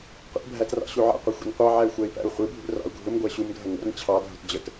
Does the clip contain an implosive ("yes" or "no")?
no